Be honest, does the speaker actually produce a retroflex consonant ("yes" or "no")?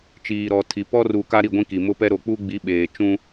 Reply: no